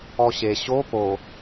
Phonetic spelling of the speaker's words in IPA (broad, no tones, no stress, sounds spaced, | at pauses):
ɔ ɕ e ɕ o p o